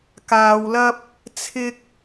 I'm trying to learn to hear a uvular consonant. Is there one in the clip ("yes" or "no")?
no